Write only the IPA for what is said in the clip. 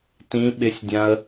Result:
tĩ ɓɪsʲdʲãə̯

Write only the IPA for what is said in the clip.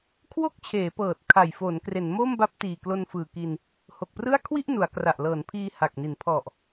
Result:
kʰwo˥˩k̚t͡ɕʰeː˩˦pɤː˨˩t̚ kʰa˨˩jfo˩˦nkre˩˦n mo˥˩mba˦˥p̚tiː˨˩ klo˧nfɯː˨˩ki˧n | ho˨˩k̚prɯ˥˩a̯ kʰwi˥˩ʔ nu˩˦a̯kra˨˩ʔ lɤː˩˦npʰiː˧ ha˨˩k̚ni˩˦n pʰɔ˨˩ʔ

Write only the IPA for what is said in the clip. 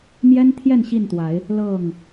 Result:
mjɛ˦nt̪ʰjɛ˥˨nɕi˥˨nt̪wa˨˦ɪ̯ | lɤ˥˨ŋ

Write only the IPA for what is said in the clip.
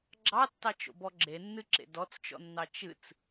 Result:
ɡ͡ǁɑtːɑt͡ʃo̰ bɔɡ͡ǁenːɨǁḛ dɔt͡st͡ʃɔ̰nːɑ t͡ʃɨt͡s

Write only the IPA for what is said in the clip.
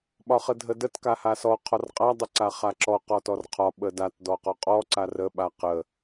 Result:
ɓɒχədʱədət kahasɔ qʰɔrqʼa dˤəǀaχaǁɔ qɔtɔrqʰɒ ɓədat dɔqɔqʼɔ ǀarə ɓaqə

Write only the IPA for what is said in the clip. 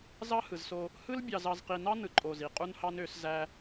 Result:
zɑ˦hɯ˨zso˦ | hɯ˦l bʲɑ˨zɑ˨zqi˨nɑ˦ nɯ˨ǃʼo˨ zi˨qʼu˦nhɑ˦n ø˨˦szæ˦

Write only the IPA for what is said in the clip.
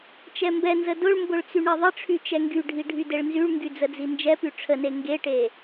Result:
t͡ʃɛmbɛnzə dʊɭmbʊɭ t͡syɳeðˤəʈ͡ʂʰy t͡ʃɛŋɡyɖʱi ɖʱydeɭnzyɭŋɡy d͡zəd͡zind͡ʒɛpy ʈ͡ʂʰəne ŋɡeʈe

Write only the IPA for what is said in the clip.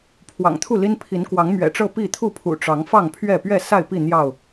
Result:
pʰwɑ̰˨˩ŋt̪ʰu˥˨li˦n pʰi˨˦nkwɑ˨˦ŋmɥɛ̰˨˩ʈ͡ʂɤ˥˨ pi˥˨t̪ʰu˥˨pʰṵ˨˩ ʈ͡ʂɑ˨˦ŋfɑ˥˨ŋpʰɥɛ˥˨ pɥɛ˥˨sa˥˨ɪ̯pi˥˨ n̪jɑ˥˨ʊ̯

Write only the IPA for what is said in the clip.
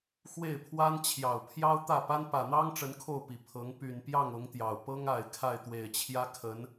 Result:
xwe˥˩ɪ̯pʰwa˥n t͡ɕʰjɑ˨˩ʊ̯pʰjɑ˥ʊ̯t̪ä˥˩ pa˥n pä˨˩n̪ɑ˥ŋ ʈ͡ʂə˧˥nkʰo˥˩ʊ̯pi˨˩ pʰɤ˧˥ŋ py˨˩npjɑ˥˩ŋ ʊ˧˥ŋt̪jɑ˨˩ʊ̯ pɤ˥ŋa˨˩ɪ̯ kʰa˥˩ɪ̯t̪we˨˩ɪ̯t͡ɕʰjä˥ kʰə˧˥n

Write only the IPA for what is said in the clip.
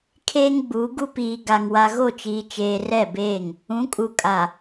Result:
kʰeː˦ŋɡ͡buː˨˦ɡu˦ piː˨ɡa˨ŋ wa˨ɣo˦˨t͡ʃiː˨t͡ʃeː˨ rɛ˦˨beː˦˨ŋ | ũ˨˦kʼu˨kʼa˨

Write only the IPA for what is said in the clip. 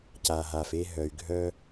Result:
ca˨ɦa˨f e˧ɦœ˨y̯ɡʱœ˧

